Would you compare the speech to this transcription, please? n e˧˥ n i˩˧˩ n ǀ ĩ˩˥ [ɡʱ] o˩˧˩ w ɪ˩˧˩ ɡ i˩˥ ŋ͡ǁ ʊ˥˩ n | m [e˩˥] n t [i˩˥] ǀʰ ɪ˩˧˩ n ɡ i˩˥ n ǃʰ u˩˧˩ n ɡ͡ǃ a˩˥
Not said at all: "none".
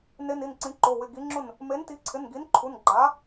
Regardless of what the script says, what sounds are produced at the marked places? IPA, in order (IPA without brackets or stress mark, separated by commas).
ǃ, e˩˥, i˩˥